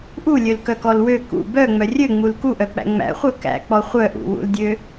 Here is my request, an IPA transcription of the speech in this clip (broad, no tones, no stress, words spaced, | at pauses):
ʔulʲølkœkɔl wø kṵ bœŋ͡mœ rʲøŋ͡mul kuʔœk͡pæ̰ ŋ͡mæ̰χʷœ kæ̰k͡pɔ χʷœʔṵwṵldʲø